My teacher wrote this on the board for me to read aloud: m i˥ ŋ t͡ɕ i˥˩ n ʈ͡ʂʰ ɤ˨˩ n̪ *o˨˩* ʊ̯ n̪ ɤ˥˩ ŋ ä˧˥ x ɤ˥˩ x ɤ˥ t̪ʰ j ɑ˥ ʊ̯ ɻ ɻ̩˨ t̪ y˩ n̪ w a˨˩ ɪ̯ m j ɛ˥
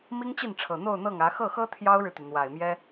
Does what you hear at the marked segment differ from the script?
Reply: yes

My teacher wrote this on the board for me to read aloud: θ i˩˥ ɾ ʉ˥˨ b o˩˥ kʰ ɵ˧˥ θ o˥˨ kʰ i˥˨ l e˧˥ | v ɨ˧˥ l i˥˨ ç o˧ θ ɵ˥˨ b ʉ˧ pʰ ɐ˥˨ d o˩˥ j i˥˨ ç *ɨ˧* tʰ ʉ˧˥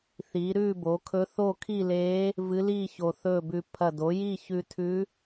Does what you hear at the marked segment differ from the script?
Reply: yes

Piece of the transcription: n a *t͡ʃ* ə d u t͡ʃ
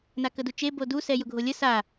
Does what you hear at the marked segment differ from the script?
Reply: yes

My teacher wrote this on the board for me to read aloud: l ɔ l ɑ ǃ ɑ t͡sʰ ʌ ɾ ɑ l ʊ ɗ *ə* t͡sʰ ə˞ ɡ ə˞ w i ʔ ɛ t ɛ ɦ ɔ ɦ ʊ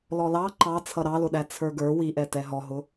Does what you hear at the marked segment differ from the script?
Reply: yes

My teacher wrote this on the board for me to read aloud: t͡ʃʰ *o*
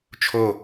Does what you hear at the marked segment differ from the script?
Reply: no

